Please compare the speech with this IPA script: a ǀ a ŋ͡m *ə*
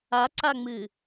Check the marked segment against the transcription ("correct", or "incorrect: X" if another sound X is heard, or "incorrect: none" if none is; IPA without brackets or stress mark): incorrect: ɨ